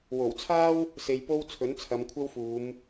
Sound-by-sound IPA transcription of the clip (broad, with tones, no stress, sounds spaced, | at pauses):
w o˨˩ w t͡sʰ aː˥ w | s e˧ j p o˥ w t͡sʰ ɵ˨˥ n t͡sʰ ɐ˨˧ m kʷʰ ɐ˥ w f uː˨˧ m